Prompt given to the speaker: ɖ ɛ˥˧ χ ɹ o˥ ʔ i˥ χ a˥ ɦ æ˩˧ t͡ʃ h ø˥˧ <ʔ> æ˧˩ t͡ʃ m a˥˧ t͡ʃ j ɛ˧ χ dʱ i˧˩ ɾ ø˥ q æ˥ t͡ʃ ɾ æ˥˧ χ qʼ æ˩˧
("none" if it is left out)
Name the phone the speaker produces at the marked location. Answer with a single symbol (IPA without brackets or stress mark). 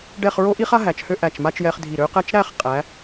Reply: ʔ